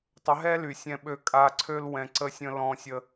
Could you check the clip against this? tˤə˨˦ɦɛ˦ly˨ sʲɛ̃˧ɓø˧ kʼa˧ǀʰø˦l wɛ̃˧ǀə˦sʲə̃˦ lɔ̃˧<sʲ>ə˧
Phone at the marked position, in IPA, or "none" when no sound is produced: sʲ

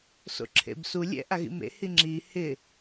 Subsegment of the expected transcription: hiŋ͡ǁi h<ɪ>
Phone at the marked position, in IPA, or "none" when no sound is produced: ɪ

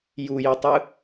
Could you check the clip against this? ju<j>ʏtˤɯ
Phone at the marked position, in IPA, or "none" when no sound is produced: j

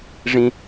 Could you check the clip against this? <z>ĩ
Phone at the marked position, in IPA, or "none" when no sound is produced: ʐ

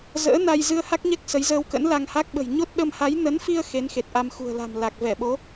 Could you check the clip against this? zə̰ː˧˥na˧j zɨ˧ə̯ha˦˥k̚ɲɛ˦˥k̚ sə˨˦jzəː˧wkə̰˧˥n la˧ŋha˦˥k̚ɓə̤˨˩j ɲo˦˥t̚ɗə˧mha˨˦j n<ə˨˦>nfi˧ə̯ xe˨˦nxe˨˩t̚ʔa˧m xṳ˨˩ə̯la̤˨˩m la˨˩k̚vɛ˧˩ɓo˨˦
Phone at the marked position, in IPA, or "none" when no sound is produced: ə˨˦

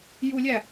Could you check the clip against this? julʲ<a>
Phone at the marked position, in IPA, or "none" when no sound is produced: æ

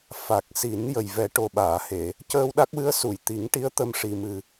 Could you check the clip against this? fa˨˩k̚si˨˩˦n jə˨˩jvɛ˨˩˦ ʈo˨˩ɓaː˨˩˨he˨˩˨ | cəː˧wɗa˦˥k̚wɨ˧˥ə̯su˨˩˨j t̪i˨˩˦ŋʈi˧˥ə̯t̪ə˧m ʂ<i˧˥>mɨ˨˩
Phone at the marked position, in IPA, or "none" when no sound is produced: i˨˩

